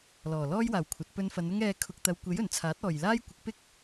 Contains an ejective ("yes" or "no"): no